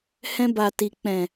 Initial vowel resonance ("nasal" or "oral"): nasal